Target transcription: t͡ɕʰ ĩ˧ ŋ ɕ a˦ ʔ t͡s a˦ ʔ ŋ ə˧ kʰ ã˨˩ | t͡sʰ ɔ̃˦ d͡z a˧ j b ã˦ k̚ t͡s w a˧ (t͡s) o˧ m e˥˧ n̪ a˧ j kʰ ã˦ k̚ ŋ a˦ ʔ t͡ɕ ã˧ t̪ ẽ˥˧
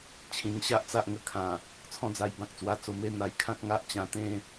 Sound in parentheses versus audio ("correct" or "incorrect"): correct